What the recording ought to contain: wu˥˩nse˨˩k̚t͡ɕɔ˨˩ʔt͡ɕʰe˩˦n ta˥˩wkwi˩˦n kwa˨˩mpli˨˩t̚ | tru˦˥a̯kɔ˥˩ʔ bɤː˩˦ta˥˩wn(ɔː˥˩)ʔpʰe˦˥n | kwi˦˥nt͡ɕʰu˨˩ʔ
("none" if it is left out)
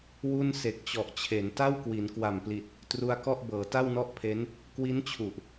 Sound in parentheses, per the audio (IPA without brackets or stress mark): ɔ˥˩